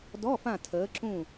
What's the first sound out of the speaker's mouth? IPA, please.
d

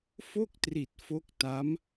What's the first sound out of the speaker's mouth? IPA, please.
f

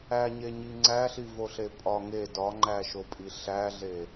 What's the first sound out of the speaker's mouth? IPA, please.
æ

